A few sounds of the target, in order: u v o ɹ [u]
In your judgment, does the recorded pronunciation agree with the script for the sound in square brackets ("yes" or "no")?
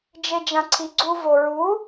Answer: yes